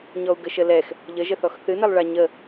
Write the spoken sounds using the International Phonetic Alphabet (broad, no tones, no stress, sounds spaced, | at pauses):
ɲ ɔ u̯ ɡ ə ʃ ə l ɛ x | ʎ ə ʒ ə θ ɔ x θ ɨ n ɛ lˠ ɭ a ɲ ə